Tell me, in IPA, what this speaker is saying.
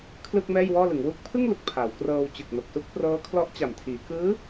kʰ l ɯː˥˩ k̚ m ɛː˥˩ j w ɔː˥˩ l ɯ˩˦ ŋ w u˦˥ k̚ pʰ ɯ˥˩ ŋ l u˨˩ k̚ pʰ a˩˦ w k r ɤː˧ w t͡ɕ ɯ˨˩ k̚ n o˨˩ k̚ s u˥˩ k̚ p r ɤː˦˥ kʰ l ɔ˦˥ ʔ t͡ɕ a˨˩ m tʰ iː˩˦ k ɯː˦˥

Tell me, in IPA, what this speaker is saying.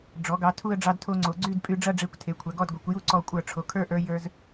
ɖ͡ʐ ɔ˩˧ ɡ ɑ˩˧ tʰ u˥˧ ə̯ ɖ͡ʐ ɑ˧ d tʰ o˧ ŋ͡ǀ o˩˧ ɡ͡ǀ y˥˧ d pʼ y˧ ɖ͡ʐ ɐ˥˧ ɖ͡ʐ e˧˩ kʷ tʰ e˩˧ kʷʰ ɐ˩˧ ɡ ɔ˥˧ d ɡʷ e˩˧ kʷ j u˥˧ ǀ ɔ˧˩ kʷʼ ə˞˧˩ ʈ͡ʂʰ o˩˧ kʰ ə˞˥˧ ʔ ə˞˧ j ə˞˧ z

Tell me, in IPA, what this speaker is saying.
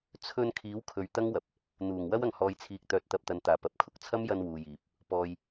t͡sʰ ɵ˧ n kʰ iː˨˥ w kʰ ɵ˨ ɥ t̪ ɐ˥ ŋ w ɐ˨ p̚ | n̪ uː˨˩ ŋ w ɐ˥ w ɐ˨ ŋ h ɔː˨ j t͡sʰ iː˨ k̚ t̪ œː˨ t̚ t̪ ɐ˨ p̚ t̪ ɐ˨ n t̪ aː˨˩ p ɐ˨ p̚ kʰ ʊ˥ k̚ t͡sʰ ɐ˥ m j ɐ˧ n w uː˨ j iː˨ p̚ | p ɔː˨ j

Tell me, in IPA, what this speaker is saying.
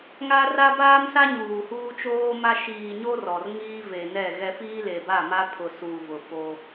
ŋ a˦ r a˦ b aː˦ m s a˦ ɲ uː˨ h uː˦ t͡ʃ oː˦ m a˦ ʃ iː˨ ɲ o˦ r ɔ˨ r ŋ iː˦ v e˨ n ɛ˦˨ ɣ ɛ˦ f iː˦ l e˨ b a˦˨ m a˦ pʰ ʊ˨ s uː˨ v ʊ˨ f o˦

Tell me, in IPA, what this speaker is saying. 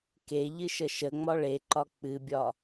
k e ʎ ɨ ʃ ə ʃ ə ŋ͡m ɒ ɭ e ǃ ɒ k͡p ɨ bʲ ɒ

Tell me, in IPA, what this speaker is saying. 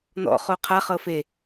n ɔ̰ χ o qʰ a χ ɤ f e

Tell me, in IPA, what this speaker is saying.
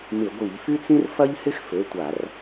m ɪ˧˩˧ ɡʷ i˧˩˧ ʎ f y˥ t͡s ĩ˥ r f ɐ˥ ʎ h ɪ˥ x f ø˩˧˩ tʷ a˧˩˧ r

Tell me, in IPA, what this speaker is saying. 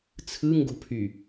t͡sʰ ɯ ŋ ɡ o̤ pʰ y

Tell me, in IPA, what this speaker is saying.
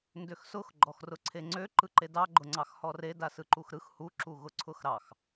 n d ø x s ʊ x ɡ͡ǃ ɔ x r ʊ ǀʰ e ŋ͡ǀ ø ǃ ɯ ǃ e d ɑ ɡ͡ǃ ʊ ŋ͡ǀ ɑ x h ɔ r e d a s ɯ ǃ u x ɾ ɯ x h u ǁ u ɣ ʊ ǀʰ ʊ x ɾ ɑ x

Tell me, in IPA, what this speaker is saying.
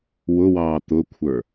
w ʊ w ɑː t̪ ʊ kʷʰ ə˞

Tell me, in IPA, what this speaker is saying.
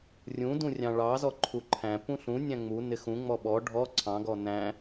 rʲ ũ d ũ rʲ ɑ̃ ɭ ɑ z ɔ ǃʰ u ǃʰ æ̃ p ũ ɬ ũ nʲ æ̃ ŋ͡m u n ɪ x ũ ŋ͡m ɔ ɓ ɔ ɖʱ ɔ ǀʰ ɑ̃ ɡ ɔ n æ̃

